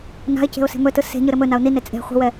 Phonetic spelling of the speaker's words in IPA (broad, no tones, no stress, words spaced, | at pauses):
na̤ɪ̯ce̤ʊ̯ se̤mɵtɯ se̤ ɲɯɾɘmɵnaʊ̯ nine t͡sʼe̤ χʷi̤wɛ